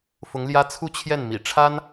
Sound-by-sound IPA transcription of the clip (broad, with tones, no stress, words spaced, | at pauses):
fʊ˧˥ŋljä˥ t͡sʰu˥˧t͡ɕʰjɛ˥˩nmḭ˨˩ ʈ͡ʂʰa˥n